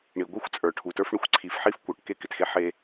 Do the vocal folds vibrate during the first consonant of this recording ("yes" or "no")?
yes